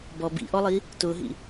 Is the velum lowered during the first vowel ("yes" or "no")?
no